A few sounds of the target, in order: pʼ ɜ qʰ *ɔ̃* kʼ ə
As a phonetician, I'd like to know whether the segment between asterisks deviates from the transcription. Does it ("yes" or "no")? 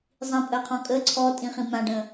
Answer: no